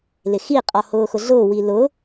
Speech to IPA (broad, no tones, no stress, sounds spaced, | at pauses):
l ɪ x i qʼ ɔ h ʊː x ʊ ɮ ʊː w i l ʊ